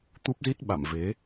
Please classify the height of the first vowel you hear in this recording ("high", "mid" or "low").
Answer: high